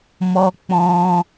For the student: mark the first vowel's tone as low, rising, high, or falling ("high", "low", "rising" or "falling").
high